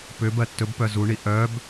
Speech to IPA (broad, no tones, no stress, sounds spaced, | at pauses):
p ʏ b ɜ tː ɵ b p œ z u ɳ i ʔ œ b